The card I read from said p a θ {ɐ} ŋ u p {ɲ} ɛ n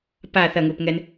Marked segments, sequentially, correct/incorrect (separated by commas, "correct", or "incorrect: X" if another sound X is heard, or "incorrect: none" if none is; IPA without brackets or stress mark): correct, incorrect: ŋ